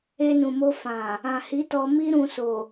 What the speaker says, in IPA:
e˧ n ũ˨ m o˧ f ã˨ | ã˨ h i˨˦ t ɔ˧ m i˦ ɾ ũ˧ s o˨

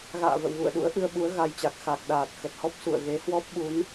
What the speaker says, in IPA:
ɣ a̰ː˧˨ v ə̰˧˨ w ɣ ṵ˧˨ ə̯ ɗ ṵ˧˥ ə̯ ʔ ɨ˧ ə̯ ɓ u˨˦ ə̯ ɣ a˧ j t͡ɕ a˨˩ k̚ x a˨˩ k̚ ɗ aː˨˩ t̚ x ə˨˩ t̚ h ɔ˦˥ p̚ s ṵ˧˨ ə̯ ɣ e˨˦ h w ɔ˦˥ p̚ ɓ u˨˦ n

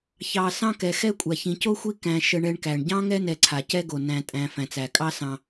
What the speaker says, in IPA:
ç ɑ˨ s ɑ̃˥ k ɛ˩ x ɛ˦ kʷʼ a˩ ç ĩ˨ c o˥ xʷ i˦ k æ̃˨ ʃ ə˨ ɳ ɛ˨ ɳ k æ˩ ɳ ɟ ɑ̃˥ ŋ ɛ˥ n ɛ˨ ǀʰ a˩ c ɛ˦ ɡ o˩ n æ̃˨ tʼ æ̃˨ f æ̃˩ t͡s æ˩ kʼ ɑ˦ s ɑ̃˨

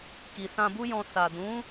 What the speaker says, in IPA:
k i˨ s ã˧ b u˦ j ɔ̃˧ s a˨ d ũ˨˦

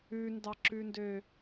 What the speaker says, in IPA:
ʉ n d ɑ ǁ ʉ n d ø

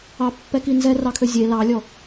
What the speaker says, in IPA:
ɑ pː ɛ k i n z ɛ r ɑ kʰ ø zʲ e l ɑ lʲ ɔ

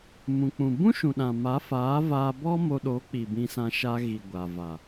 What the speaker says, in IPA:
m ũ˨ k͡p ũ˨ b ũ˦ ʃ ũ˨ ɗ ã˨ m a˨˦ f aː˨˦ v aː˧ b ɔ˦ m o˧ ɗ o˨˦ k͡p i˨ b ĩ˧ s ã˧ ʃ a˧ ɣ i˨ ɡʷ a˨ v a˨

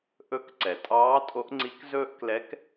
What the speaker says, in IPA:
ʔ ɵ˧˥ k ǀ ɛ˩ tʼ ɑː˧˥ tʼ o˧˥ ʔ ŋ͡ǀ i˧˥ k z ɵː˥ ʔ k l ɛ˧˥ k

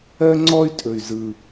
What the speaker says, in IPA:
ɜ˥ ŋ͡ǀ ɔ˥ y̯ tʼ ɵ˨˩ y̯ z ɯ˨˩

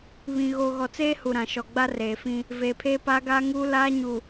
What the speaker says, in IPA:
β ĩ˨ ɣ oː˨ ɣ ɔ˨ t͡s eː˦ h u˨ ɾ ã˨ ʃ ɔ˨ ɡ͡b a˦ r eː˨ f ĩ˦ | v eː˨ pʰ eː˦ p aː˦ ɡ aː˦ ŋ uː˦ l aː˦ ɲ u˨

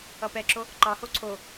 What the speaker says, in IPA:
ʌ p ɛ ǁ o | ǃ ɑ h o ǀʰ o

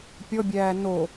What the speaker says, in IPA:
pʲ ɔ bʲ æː n o

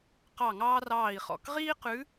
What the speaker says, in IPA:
q ɑ˦˨ ŋ ɑː˥ r ɑː˦˨ i̯ χ ɔ̰˦˨ k ʁ iː˥ q ʉ˧˥

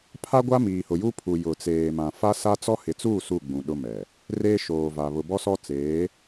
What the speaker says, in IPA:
pʰ a˦ ɡʷ a˦ m iː˨ h ʊ˨ j u˦ pʰ u˨ j ʊ˨ t͡s eː˨ m ã˨ f a˦ s a˦ t͡s ɔ˦ h ɪ˨ t͡s uː˦˨ s u˦˨ ɡ͡b ũ˨ ɗ ʊ˦ m ɛ˨ | r eː˦ ʃ oː˨ v a˨ β ʊ˨ b ɔ˦ s ɔ˦ t͡s eː˨˦

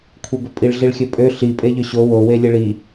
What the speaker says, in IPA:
kʷʰ e b ʏ pʼ i ɭ ɮ i ɭ xʲ ɵ pʼ ø ɬ i pʼ e ʎ ʏ ɕ o w o w e lʲ e ɭ i

